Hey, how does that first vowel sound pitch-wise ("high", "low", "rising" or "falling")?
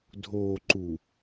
low